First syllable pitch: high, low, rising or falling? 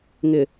low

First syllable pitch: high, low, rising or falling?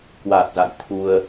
low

